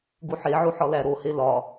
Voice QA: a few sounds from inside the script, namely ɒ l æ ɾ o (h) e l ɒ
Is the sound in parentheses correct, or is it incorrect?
correct